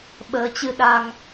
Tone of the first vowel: rising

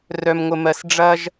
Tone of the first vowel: high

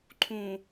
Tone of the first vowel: low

